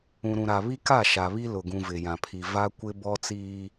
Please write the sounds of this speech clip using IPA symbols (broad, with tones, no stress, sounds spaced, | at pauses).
ũ˨ ɾ ũ˨ ɾ a˨ β i˦ k a˦˨ ʃ a˨ β i˦ l ʊ˨ ɡ ũ˨ v ɪ˨ j ã˨ pʰ i˨ v a˦ kʷ ɪ˦ b ɔ˦ t͡s iː˦